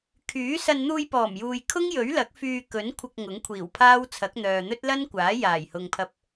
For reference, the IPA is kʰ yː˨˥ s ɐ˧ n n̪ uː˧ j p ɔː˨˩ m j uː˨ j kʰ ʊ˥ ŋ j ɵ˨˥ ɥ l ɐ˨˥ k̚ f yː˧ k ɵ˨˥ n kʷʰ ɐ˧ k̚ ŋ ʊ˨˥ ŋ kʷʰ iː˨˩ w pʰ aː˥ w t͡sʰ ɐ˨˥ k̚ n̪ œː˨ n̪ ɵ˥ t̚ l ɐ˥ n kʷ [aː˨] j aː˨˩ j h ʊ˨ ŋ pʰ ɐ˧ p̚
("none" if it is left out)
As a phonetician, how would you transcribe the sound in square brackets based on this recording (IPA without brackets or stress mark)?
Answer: aː˨˥